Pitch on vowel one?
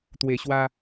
low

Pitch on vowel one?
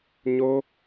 high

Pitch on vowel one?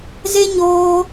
high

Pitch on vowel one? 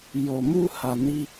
low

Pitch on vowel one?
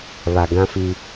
low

